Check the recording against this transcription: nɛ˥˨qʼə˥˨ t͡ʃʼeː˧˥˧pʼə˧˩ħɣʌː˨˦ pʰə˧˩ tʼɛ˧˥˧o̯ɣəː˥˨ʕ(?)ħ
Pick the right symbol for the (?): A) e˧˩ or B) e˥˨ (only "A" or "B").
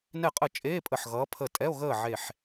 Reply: A